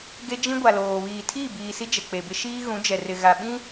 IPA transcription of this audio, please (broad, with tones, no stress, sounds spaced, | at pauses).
ɡ e˦ d͡ʒ ĩ˦ ɡʷ a˨ l oː˨ β iː˨ tʰ iː˦˨ b iː˨ s i˦ d͡ʒ ɛ˨ k͡p e˨ b ɪ˦ ʃ iː˦ ɣ ũ˨˦ d͡ʒ ɛ˨ r ɪ˨ ɣ a˨ ɓ ĩ˦